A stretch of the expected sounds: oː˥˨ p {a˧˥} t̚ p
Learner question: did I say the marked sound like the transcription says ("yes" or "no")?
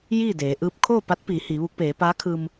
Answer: yes